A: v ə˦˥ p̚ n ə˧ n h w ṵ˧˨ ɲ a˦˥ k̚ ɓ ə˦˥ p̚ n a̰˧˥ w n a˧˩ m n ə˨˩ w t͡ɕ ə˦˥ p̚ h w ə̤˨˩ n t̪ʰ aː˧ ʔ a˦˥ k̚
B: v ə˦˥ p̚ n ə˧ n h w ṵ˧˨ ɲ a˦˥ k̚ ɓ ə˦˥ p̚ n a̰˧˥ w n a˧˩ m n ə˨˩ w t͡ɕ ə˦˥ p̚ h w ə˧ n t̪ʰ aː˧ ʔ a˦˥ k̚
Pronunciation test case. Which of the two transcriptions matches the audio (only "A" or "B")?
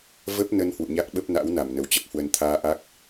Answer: B